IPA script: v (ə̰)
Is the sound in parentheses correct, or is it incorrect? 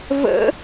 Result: correct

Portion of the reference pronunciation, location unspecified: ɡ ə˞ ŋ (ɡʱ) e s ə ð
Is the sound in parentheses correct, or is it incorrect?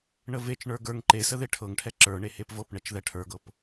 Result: incorrect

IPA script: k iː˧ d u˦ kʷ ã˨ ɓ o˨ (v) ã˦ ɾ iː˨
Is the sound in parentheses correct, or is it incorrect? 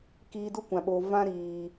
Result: correct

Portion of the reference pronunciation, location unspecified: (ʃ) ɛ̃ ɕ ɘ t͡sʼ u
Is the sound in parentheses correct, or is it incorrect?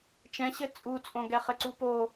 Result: incorrect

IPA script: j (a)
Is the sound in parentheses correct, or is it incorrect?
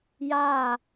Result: correct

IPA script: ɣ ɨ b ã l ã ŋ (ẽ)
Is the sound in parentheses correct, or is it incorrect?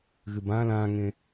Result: correct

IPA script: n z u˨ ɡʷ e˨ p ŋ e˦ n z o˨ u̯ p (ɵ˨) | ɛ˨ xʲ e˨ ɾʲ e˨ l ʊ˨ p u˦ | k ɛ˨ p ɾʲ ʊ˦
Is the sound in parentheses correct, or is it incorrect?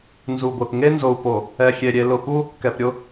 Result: incorrect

